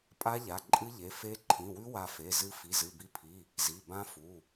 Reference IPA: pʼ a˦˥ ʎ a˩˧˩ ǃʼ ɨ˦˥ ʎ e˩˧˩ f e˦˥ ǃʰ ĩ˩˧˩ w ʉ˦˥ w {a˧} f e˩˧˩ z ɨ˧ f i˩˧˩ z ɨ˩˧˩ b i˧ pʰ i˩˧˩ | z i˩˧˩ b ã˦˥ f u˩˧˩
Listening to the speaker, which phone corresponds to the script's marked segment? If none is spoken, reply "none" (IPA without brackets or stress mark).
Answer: a˧